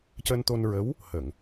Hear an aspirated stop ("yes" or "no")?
no